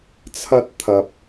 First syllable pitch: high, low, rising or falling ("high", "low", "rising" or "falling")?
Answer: high